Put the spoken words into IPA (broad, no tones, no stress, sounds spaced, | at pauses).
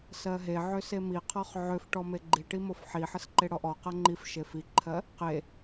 s ɜ ɦ e ʕ ø s e m i qʰ ɔ χ ʕ ø f ʈ ɔ m e ɡ͡ǃ i ʈ i m o f ħ i ħ ə s ǃ e ɽ ɔ ʔ ɔ q ɜ ŋ͡ǃ i f ʃ e f i ǃʰ ɜ | q e